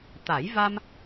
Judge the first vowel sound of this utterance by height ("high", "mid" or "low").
low